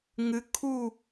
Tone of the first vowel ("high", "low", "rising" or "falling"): rising